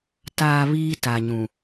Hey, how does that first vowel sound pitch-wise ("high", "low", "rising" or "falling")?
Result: low